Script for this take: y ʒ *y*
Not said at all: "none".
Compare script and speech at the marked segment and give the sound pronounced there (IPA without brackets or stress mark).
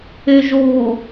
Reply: u